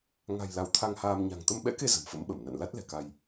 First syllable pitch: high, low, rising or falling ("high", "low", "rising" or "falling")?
low